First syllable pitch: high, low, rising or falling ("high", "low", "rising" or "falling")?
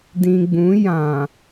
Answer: low